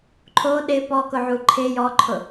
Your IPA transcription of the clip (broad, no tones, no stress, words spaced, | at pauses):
ǃʰo ɗɪ pɔkʊʕu ǃʰɪ jɔǃʰʊ